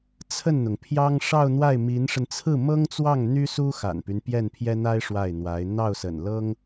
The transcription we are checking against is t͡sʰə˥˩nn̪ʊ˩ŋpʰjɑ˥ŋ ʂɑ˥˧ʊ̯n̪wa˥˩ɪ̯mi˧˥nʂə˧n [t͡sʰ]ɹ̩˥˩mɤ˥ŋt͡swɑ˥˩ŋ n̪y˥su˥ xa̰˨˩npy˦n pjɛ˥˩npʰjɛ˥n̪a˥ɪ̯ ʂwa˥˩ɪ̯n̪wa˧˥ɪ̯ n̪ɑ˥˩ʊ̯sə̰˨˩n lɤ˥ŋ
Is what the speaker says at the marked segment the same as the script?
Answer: yes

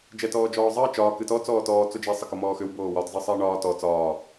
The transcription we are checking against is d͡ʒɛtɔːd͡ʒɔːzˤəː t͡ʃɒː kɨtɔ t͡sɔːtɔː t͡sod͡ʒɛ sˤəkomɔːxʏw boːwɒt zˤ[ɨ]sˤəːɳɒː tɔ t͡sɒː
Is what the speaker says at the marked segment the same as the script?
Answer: yes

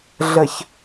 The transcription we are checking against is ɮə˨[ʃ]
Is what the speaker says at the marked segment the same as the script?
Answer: no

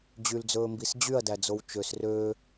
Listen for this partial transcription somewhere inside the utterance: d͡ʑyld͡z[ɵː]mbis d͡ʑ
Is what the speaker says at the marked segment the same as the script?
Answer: yes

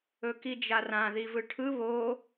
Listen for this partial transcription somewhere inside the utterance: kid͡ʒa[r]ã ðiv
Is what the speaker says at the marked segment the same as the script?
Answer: yes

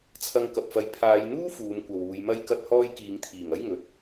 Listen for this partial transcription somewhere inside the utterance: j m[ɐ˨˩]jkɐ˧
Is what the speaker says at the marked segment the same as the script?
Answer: no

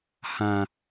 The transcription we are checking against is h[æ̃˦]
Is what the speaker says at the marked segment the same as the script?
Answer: no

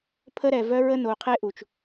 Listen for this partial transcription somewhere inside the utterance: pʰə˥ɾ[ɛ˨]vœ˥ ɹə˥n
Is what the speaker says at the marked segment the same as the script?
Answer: yes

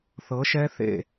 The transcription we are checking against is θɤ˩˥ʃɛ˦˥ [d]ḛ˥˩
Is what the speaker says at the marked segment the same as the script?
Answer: no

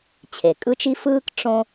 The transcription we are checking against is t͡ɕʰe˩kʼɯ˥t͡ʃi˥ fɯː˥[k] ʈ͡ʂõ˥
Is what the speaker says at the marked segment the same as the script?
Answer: yes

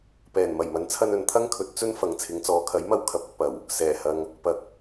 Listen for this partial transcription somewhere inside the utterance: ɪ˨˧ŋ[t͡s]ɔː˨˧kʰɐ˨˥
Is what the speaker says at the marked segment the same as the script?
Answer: yes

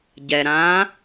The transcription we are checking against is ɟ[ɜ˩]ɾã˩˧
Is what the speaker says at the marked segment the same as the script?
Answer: no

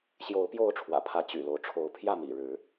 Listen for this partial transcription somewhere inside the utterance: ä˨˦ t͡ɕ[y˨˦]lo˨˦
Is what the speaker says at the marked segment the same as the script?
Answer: no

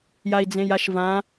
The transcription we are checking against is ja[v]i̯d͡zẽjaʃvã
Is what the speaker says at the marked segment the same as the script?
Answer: no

